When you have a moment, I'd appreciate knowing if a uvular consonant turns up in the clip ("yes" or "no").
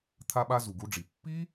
no